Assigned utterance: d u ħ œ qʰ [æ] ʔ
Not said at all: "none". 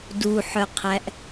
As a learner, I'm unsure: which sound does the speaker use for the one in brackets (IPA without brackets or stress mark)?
æ